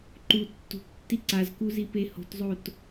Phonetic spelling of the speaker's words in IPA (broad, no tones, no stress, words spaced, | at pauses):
ǃu tːṳptːi ǀazkuzipe ho̤tzˤot